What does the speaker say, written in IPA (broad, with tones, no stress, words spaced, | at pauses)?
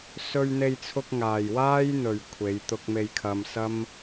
sɵ˧ɥn̪e˧jt͡sʰʊ˧k̚ŋaː˨j waː˥jn̪ɵ˨ɥ kʷʰe˨˧jt̪ʊ˧k̚me˧jkʰɐ˧m sɐ˥m